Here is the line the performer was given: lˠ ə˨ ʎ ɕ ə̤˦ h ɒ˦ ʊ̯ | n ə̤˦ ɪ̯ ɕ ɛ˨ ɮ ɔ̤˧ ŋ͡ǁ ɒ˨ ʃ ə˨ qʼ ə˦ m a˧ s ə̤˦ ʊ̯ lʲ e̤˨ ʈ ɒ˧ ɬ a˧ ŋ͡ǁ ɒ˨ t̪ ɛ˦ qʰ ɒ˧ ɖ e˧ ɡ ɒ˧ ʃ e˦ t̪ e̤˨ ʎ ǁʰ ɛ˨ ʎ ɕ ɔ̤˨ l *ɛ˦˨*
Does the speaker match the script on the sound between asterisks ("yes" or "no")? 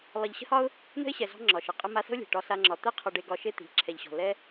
no